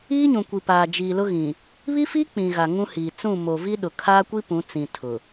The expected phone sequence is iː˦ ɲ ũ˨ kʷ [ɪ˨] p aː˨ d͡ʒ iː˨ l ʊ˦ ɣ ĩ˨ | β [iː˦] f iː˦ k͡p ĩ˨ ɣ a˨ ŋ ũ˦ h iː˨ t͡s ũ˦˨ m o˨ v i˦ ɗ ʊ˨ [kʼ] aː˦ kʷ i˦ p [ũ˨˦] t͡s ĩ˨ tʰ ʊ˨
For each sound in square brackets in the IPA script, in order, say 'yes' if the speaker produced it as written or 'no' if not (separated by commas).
no, no, no, yes